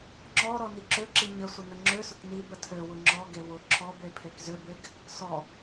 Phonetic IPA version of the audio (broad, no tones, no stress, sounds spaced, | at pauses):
ŋ͡ǁ ɔ ɾ ɔ n i ǁ ø ǁ i ɲ ə sʷ ə n ə ŋ͡ǁ ø s ʊ k n i b ə tʰ ø w ʊ ŋ͡ǁ ɔ ɡ e w ʊ ǁʰ ɔ b e pʰ e k z ø b e ɡ | s ɔ